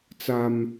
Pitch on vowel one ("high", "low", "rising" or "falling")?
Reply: high